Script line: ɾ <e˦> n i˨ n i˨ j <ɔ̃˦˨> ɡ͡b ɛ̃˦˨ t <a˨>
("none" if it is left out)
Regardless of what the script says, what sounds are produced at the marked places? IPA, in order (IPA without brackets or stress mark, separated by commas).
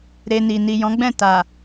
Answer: e˧, ɔ̃˨˦, a˨